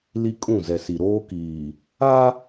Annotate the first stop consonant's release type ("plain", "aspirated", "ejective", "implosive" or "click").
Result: ejective